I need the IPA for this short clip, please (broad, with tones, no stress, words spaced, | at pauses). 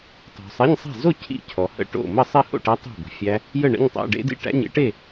tˤo̤˨sˤe˧˥˧ɲsˤe̤˥˨ zo˥˨ cʰḭ˥˨cʰɔ˨hə̰˥˨ʈo̰˥˨ mə˥˨ sˤi˥˨ho̰˥˨ʈæ˦˥ tˤe̤˥˨bə̤˨fʲæ˦˥ | jə˥˨ ɳə̰˧˥˧ɲtˤæ̰˧˥˧ɖḛ˦˥dḭ˦˥ ʈæ̰˧˥˧ɲḛ˦˥ʈe˥˨